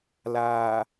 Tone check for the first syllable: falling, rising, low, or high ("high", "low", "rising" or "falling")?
low